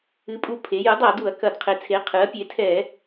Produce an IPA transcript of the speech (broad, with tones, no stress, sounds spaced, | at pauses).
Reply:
ɨ˩˥ pʼ u˧˩˧ pʰ e˩˥ j ɨ˩˥ dˤ a˧˩˧ d u˧˩˧ ɐ̯ k ɐ˧˩˧ d qʰ e˩˥ t͡sʰ e˩˥ qʰ ɨ˩˥ ɐ̯ pʲ e˩˥ tʰ ɛ˧˩˧